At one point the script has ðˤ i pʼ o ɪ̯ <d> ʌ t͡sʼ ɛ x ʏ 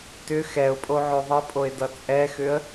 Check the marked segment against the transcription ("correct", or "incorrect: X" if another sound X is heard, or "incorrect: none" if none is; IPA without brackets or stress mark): correct